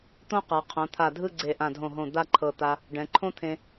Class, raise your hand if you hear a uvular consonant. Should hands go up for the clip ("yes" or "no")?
yes